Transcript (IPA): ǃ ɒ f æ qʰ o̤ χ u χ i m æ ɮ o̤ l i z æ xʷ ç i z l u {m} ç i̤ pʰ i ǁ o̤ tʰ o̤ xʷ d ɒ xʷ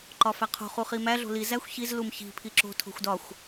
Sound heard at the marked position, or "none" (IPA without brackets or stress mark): m